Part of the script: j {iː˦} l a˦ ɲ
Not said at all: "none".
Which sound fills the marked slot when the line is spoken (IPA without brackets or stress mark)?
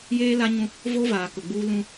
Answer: eː˦